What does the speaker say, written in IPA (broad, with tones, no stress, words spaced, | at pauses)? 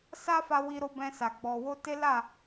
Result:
sa˦fa˧wi˧ɾo˧ bɛ̃˧sa˨ ɡ͡bɔ˨wo˧ te˦la˦˨